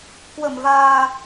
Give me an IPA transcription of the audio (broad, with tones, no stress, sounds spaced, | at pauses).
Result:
k w ə˧˩ m v aː˨˩